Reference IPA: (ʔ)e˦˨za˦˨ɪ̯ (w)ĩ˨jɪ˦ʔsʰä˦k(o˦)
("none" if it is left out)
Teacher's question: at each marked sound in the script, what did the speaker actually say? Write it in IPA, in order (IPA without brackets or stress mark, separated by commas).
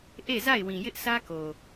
ʔ, w, o˨